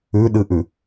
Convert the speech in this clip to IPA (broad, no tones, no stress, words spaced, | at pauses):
ʉɗɨʔʉ